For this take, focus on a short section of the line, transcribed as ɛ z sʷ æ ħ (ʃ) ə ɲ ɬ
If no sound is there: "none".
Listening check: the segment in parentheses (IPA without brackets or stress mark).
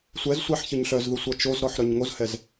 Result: ç